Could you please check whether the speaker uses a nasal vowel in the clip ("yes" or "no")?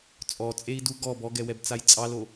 no